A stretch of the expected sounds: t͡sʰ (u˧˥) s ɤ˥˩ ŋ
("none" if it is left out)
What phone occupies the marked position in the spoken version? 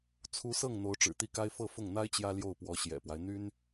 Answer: u˧˥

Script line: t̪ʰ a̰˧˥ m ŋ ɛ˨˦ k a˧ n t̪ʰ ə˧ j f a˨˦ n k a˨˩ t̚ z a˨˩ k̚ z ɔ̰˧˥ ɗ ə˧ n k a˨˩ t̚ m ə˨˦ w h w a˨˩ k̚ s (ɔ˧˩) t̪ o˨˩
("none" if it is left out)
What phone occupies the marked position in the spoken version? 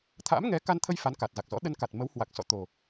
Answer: ɔ̰˧˨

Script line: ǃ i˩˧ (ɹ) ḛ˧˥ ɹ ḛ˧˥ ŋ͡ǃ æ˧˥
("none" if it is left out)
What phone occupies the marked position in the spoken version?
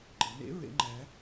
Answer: n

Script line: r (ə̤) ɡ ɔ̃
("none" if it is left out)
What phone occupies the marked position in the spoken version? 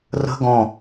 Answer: ə̤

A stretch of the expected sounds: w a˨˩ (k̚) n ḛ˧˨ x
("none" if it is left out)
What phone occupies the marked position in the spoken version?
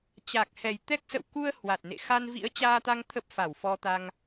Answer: t̚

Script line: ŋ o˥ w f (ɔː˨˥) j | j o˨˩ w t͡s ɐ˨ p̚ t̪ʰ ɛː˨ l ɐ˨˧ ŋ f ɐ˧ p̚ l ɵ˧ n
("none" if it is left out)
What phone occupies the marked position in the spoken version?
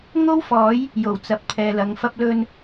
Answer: ɔː˨˥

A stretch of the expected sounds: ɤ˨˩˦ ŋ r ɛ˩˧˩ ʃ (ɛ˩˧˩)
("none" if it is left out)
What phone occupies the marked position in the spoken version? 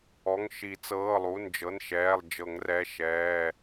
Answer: ɛː˩˧˩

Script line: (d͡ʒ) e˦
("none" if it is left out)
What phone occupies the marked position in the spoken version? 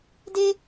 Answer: d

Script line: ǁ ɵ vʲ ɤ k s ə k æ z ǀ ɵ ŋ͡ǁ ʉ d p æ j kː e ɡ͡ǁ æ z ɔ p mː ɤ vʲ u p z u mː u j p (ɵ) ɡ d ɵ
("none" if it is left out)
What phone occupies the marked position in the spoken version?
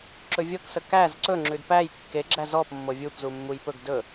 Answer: ɵ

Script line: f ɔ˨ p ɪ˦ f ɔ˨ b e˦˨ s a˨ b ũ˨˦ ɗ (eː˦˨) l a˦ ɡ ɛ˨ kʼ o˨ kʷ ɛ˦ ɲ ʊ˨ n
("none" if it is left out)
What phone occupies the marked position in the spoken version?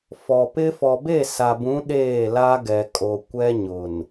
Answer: eː˦˨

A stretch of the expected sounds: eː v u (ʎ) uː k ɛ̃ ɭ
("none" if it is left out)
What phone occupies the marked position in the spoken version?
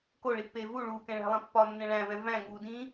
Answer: ɭ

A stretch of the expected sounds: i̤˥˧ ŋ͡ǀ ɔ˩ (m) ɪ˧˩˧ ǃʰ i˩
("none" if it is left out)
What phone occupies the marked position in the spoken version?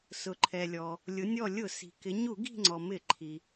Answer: m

